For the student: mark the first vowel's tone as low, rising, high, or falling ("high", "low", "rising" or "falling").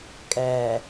low